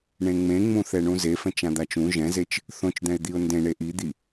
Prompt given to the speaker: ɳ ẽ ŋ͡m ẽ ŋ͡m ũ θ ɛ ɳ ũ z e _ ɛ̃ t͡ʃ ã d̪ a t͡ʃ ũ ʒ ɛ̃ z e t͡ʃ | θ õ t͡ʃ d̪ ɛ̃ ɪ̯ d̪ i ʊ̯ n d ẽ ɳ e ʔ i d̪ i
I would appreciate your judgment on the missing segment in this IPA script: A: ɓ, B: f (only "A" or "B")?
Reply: B